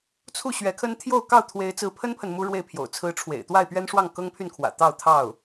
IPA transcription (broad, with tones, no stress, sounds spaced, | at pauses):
t͡sʰ u˥˩ ɕ ɥ ɛ˧˥ kʰ ə˥ n t̪ʰ j o˥˧ ʊ̯ k ɑ˥˩ ʊ̯ t̪ʰ w e˧˥ ɪ̯ t͡s ɹ̩˧˥ pʰ ə˥ n pʰ ə˨ n m u˥ ɻ w e˥˩ ɪ̯ pʰ j o̰˨˩ ʊ̯ t͡sʰ ɹ̩˧˥ ʈ͡ʂʰ w ḛ˨˩ ɪ̯ t̪ w a˥˩ ɪ̯ p ɥ ɛ˥ n ʂ w ɑ˥˩ ŋ k ɤ˥ ŋ pʰ y˥˩ n kʰ w ä̰˨˩ t̪ ɑ˥˧ ʊ̯ t̪ʰ ɑ˥˩ ʊ̯